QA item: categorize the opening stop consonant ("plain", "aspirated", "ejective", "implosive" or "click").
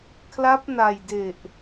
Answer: aspirated